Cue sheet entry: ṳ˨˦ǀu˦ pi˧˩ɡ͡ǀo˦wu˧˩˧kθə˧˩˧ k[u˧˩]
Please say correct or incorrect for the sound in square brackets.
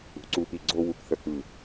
incorrect